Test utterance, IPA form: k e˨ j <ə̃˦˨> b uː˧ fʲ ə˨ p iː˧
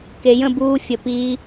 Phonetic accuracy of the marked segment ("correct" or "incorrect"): correct